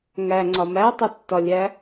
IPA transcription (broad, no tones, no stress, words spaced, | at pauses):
ŋæŋ͡ǀɒ mætˤotːɒlʲæ